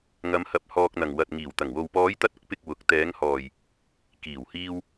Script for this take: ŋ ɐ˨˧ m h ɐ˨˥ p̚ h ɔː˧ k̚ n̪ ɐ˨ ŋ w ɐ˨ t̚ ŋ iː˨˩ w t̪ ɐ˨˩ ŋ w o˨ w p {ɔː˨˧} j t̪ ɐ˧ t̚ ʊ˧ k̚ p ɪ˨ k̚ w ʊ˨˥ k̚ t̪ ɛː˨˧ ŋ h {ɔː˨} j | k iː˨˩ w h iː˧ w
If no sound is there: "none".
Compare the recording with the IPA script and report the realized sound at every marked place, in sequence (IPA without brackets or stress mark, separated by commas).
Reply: ɔː˨˧, ɔː˨